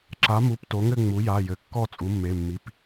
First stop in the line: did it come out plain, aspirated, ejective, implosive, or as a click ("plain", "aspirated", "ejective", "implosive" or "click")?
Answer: click